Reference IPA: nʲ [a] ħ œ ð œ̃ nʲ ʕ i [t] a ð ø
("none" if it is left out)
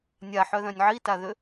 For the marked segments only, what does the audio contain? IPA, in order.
a, t

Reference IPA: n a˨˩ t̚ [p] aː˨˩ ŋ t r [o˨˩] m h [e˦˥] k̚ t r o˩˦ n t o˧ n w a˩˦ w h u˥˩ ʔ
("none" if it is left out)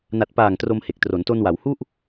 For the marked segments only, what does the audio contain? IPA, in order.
p, o˧, e˨˩

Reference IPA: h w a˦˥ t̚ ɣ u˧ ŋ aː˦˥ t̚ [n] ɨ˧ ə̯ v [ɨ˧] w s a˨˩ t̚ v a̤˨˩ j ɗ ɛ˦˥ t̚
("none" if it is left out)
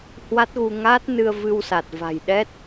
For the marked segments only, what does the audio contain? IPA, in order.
n, ɨ˧

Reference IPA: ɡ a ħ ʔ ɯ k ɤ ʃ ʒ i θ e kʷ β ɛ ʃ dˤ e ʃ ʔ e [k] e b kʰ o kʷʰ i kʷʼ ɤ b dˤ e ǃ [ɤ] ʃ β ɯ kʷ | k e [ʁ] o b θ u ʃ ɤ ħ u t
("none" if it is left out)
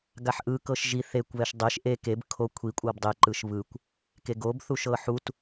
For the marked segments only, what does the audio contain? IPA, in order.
k, ɯ, ɡ

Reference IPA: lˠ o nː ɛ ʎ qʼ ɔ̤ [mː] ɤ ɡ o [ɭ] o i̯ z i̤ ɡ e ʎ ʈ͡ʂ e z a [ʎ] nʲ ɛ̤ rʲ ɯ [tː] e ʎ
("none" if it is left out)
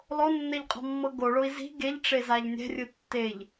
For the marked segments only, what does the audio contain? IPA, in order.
mː, ɭ, ʎ, tː

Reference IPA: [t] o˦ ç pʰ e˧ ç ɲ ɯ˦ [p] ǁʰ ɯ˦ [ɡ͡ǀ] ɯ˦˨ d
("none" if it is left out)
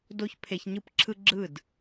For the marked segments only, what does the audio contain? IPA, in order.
d, p, ɡ͡ǁ

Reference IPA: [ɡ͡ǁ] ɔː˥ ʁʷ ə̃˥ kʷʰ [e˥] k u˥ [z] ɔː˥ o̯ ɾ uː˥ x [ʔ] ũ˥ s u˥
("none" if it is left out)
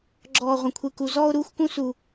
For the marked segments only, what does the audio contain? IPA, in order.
ɡ͡ǁ, e˥, z, k

